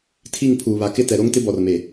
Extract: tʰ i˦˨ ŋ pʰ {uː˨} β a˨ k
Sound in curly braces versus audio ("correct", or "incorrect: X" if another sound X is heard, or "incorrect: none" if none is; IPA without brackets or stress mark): correct